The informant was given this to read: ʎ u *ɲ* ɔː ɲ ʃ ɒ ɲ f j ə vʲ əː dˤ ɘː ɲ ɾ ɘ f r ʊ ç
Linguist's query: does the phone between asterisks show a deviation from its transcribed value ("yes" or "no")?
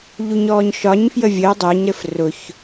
no